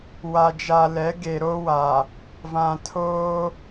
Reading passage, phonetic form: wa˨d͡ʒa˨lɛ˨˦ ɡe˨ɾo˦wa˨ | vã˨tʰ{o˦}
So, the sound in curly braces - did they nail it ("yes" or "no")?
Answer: no